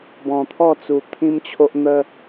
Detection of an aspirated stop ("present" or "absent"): present